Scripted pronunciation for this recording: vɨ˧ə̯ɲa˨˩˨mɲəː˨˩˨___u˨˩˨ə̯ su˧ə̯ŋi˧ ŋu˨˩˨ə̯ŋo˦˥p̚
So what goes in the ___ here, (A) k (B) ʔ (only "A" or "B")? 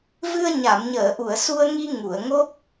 B